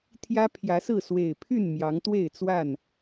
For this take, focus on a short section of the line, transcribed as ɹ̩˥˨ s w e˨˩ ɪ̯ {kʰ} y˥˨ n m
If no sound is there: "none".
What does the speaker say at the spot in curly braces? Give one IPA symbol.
pʰ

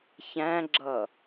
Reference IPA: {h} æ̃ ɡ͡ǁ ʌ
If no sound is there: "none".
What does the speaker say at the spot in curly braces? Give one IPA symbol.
ç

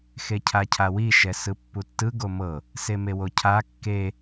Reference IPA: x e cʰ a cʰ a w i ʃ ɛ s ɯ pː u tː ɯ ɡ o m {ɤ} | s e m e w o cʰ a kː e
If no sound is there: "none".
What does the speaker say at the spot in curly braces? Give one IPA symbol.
ɤ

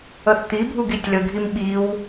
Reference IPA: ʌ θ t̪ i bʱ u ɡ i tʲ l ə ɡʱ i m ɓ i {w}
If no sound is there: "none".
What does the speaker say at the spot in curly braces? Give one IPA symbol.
w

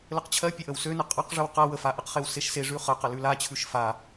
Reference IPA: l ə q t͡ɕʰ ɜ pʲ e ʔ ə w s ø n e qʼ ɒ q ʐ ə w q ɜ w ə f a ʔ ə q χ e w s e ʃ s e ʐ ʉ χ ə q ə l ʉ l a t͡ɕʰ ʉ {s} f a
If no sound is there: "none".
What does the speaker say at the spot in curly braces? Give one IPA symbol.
ʃ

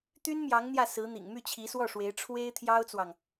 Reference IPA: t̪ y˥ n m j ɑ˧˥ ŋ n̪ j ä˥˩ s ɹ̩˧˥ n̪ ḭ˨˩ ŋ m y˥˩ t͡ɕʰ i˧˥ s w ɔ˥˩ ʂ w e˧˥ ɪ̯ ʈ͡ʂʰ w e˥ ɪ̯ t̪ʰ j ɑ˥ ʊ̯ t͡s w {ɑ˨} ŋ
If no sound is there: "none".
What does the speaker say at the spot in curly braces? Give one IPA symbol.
ɑ˨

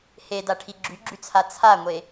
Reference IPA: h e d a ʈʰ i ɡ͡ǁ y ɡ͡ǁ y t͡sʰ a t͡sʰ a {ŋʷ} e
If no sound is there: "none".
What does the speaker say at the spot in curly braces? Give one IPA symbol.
ŋʷ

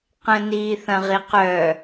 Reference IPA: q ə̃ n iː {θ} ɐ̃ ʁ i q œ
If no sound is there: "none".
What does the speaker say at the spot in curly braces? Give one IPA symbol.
θ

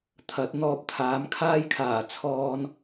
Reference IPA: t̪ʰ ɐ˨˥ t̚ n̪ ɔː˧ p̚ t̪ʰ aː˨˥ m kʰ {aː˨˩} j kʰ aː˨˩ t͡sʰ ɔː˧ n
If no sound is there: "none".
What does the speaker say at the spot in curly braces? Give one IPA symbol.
aː˥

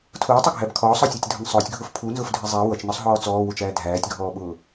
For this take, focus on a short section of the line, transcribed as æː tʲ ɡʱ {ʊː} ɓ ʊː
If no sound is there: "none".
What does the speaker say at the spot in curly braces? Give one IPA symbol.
ɔː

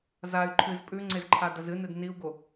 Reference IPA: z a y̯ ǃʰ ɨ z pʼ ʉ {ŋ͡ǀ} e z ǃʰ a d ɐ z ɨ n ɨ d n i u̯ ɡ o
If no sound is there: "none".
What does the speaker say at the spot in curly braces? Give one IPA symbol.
ŋ͡ǀ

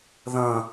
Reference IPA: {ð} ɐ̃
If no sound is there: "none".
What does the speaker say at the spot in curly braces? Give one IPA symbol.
ð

